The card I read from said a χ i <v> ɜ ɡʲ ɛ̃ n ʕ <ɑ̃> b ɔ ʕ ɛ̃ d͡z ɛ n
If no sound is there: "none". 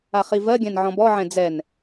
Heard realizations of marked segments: v, ɔ̃

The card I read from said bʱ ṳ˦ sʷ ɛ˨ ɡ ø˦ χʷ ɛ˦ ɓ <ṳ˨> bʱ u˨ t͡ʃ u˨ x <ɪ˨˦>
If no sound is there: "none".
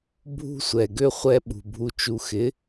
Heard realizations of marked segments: ṳ˨, ɪ˨˦

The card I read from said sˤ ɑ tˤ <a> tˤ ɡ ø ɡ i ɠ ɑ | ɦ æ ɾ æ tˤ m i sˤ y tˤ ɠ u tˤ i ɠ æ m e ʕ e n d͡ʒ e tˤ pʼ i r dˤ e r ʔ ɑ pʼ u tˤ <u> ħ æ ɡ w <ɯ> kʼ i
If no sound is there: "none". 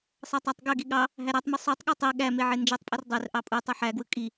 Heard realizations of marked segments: æ, ɯ, ɯ

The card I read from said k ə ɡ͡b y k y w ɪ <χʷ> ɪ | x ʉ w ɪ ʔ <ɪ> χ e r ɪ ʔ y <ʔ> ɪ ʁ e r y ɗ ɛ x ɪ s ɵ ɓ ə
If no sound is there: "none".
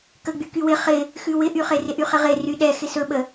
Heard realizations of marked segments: χ, y, χ

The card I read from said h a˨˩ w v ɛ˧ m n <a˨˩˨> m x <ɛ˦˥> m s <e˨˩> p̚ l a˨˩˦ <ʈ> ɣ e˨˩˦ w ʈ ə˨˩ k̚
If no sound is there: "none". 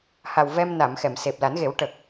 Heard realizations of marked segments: a˨˩˨, ɛ˨˩˨, e˨˩, n

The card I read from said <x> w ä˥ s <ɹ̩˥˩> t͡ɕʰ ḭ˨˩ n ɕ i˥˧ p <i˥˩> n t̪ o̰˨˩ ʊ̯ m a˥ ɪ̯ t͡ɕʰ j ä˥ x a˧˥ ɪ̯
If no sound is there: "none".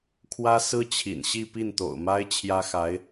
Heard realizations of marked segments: kʰ, ɹ̩˥, i˥˩

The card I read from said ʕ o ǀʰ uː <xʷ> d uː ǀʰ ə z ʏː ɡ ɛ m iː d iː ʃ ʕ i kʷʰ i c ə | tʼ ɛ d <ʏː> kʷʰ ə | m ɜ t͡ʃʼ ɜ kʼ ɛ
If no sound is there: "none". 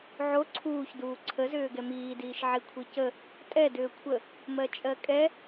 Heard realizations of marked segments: ç, ʏː

